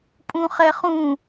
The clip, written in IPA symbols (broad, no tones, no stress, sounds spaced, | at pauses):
pʼ ũ χ ɛ χ ũ